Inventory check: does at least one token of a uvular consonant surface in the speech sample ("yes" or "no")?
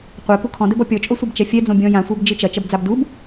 yes